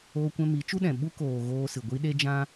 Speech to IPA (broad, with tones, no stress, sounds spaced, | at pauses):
oː˧ kʷ ɛ̃˧ m i˨˦ t͡ʃ u˦ ɗ ɛ̃˨ ɓ u˦ k oː˨ ɣ oː˧ s ɨ˨ ɡʷ i˧ ɗ e˧ d͡ʒ ã˧